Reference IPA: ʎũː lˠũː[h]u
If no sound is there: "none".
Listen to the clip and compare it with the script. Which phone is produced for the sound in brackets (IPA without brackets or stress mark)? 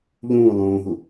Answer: ɦ